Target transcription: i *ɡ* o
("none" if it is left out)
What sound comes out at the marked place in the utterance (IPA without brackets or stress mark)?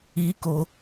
k